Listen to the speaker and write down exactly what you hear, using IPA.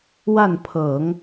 w a˥˩ n pʰ ɤ˨˩˦ ŋ

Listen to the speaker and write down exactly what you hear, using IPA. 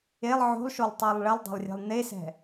e lˠ ʕ o̤ lˠ ʃ o lˠ tˤ ɛ lˠ ɭ ɛ lˠ dˤ e̤ lˠ rʲ ɛ̤ lˠ n e s ɛ̤

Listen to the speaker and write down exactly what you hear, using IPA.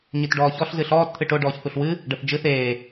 ɲ ɨ t ɖ ɔː ç ɔ ɬ z ɨ ɬ ɔː t t̪ʰ ɨ ʈ o ɖ ɔː ç θ u ɬ w ɨ | ɖ ə θ d͡ʒ ɨ θ eː

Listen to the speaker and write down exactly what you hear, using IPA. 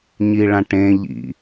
ɲ i ɭ ã ʈ ẽ ʎ ḭ

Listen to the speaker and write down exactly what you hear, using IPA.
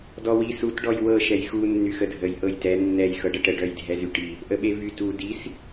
d ɔ w i s u t ɖ ɔ j w ɤ ʃ ɛ j x u nː y x ə dʱ ə j ʔ ɤ j t ɛ nː ɛ j x ɤ ɖ ə ʈ ə ɖ œ j dʱ ɛ z y ʈ i | ʔ ə ɓ e v y t u d i s

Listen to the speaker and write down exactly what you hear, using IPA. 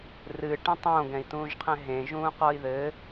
r ɨ ʈ ẽ tˤ õ ɡ ɛ̃ i̯ t ũː ʒ qʰ ɛ̃ ɦ ẽ ʒ ũː q ɔ i̯ ð ɘ

